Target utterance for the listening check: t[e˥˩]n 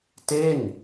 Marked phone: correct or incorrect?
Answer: correct